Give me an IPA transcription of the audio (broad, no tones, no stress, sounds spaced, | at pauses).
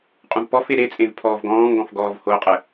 qʼ ũ v p ɔ f e ɾ e t͡sʼ ẽ v pʰ ɔː v ɡ ɔ̃ː ŋ ɡ ɔ̃ f ɡ ɔː v h o qʼ ə